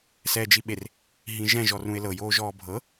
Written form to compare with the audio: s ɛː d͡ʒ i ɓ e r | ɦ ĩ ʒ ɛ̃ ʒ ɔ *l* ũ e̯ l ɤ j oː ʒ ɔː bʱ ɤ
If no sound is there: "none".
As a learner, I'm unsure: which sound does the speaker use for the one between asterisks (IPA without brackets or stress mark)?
r